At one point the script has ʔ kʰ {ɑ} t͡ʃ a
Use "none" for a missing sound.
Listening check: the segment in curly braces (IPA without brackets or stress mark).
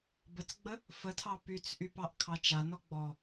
ɑ